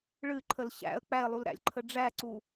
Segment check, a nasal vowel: absent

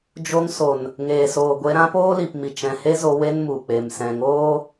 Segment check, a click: absent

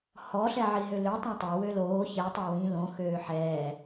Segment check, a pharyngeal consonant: present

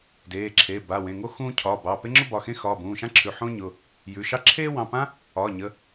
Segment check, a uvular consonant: absent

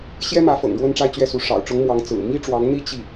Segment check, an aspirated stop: absent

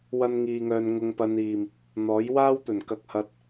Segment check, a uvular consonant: absent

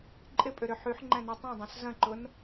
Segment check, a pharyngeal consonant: present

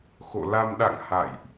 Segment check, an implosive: present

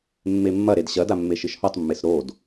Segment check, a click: absent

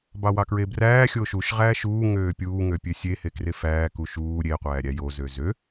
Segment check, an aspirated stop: absent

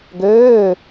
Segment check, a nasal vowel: absent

